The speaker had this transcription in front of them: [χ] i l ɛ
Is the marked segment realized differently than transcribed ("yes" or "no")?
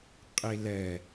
yes